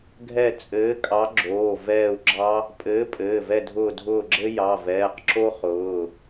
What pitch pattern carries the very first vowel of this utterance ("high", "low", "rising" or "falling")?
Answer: falling